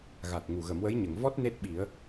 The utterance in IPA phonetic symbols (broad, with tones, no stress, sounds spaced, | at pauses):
ɣ a˨˩ t̚ ŋ u˨˩ ɣ ə˨˩˦ m w ə˧˥ j ɲ ə˨˩˨ ŋ v ɔ˦˥ t̚ n e˦˥ t̚ ɓ i˨˩˦ ə̯